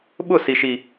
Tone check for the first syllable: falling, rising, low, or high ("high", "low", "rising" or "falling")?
falling